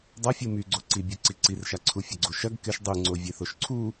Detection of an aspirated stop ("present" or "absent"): present